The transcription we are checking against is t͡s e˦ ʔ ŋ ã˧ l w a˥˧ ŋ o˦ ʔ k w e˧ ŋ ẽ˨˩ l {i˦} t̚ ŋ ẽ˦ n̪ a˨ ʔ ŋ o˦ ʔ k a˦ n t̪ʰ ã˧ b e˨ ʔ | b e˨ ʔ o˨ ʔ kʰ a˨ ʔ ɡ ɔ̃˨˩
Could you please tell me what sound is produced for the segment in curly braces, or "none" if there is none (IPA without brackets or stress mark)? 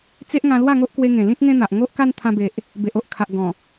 ĩ˦